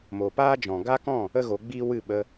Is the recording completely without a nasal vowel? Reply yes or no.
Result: no